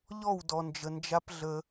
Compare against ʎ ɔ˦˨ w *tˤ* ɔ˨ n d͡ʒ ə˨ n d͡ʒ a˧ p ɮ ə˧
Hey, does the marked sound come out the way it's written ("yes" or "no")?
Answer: no